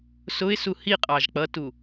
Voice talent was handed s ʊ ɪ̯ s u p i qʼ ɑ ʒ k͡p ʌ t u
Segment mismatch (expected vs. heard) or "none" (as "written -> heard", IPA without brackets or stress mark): p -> h